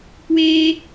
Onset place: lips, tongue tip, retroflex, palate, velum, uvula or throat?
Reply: velum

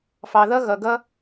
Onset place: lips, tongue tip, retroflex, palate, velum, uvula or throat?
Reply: lips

